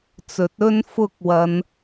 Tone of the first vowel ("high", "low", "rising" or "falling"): rising